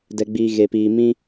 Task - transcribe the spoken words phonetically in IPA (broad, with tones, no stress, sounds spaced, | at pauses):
d ɛ˨ ɡ͡b iː˨ ɣ eː˨ p iː˨ m ĩ˧